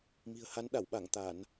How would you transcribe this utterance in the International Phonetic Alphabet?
m i̤˨˩ ə̯ h a˨˦ n ɗ a˧˩ w ɓ a˧˩ ŋ t̪ a˧˩˨ n

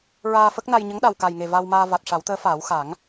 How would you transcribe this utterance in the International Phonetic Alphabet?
ɹ aː˧ f ə˦˥ k̚ n a˧ j ɲ ə˧˥ ŋ ɗ a˨˩ w k a˨˩ j ŋ e˨˩ v a˧ w m aː˧ v a˨˩ t̚ ʂ a˨˩˦ w t̪ əː˧˥ f aː˨˩˦ w x a˨˩˦ ŋ

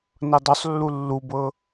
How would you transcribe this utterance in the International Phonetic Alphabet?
n ɤ dˤ o sˤ lː u lː u b ɤ

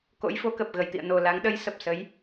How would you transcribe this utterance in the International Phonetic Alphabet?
k o̰˧˥ j f o˨˦ k ə˨˩ p̚ ɣ ə˨˩ j t̪ ḭ˧˨ ə̯ n o˨˩ l a˨˦ ŋ ɗ ə˨˦ j s ə˨˩ p̚ s ə˨˦ j

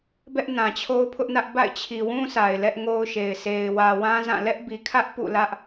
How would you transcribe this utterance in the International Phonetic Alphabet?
b ɛ˦ ʔ n ã˨ t͡ɕʰ o˦ ʊ̯ pʰ ʊ˦ ʔ n ä˦ ʔ b a̰˦˨ ɪ̯ t͡ɕʰ i˨ w ũ˦ s a˨ ɪ̯ l ɛ˦ ʔ ŋ o˦ ʊ̯ ʃ e˨ ɪ̯ s e˨ ɪ̯ w ä˨ w ã˦ z ã˦˨ l ɛ˦ ʔ b i˨ kʰ ä˦ ʔ p ṵ˦˨ l ä˦ ʔ

